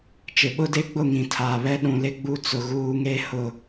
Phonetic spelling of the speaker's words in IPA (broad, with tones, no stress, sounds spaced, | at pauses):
t͡ʃ ɪ˨ ɓ ʊ˦ d e˦ ɡ͡b ʊ˦˨ ŋ ĩ˨ tʰ aː˨ β ɛ˦ ɗ ũ˨ l ɪ˦ ɡ͡b u˦ t͡s ʊ˨ ɣ uː˦ ŋ e˦ h ʊ˨